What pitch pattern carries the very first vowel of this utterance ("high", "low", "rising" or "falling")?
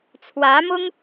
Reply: rising